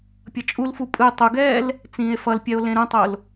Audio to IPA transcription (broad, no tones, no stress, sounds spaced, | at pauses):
pʲ ʌ t͡ʃʼ u l f u pʼ ɯ tˤ u ɡ ɛː l | t͡s ĩː e̯ f ʌ l pʲ ɛ o̯ l ẽ ɾ ũ tˤ o l